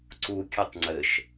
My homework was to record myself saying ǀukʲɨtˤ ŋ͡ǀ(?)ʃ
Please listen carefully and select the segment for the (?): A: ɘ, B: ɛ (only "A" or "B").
A